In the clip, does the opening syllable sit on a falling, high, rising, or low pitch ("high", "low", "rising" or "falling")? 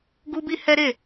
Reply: high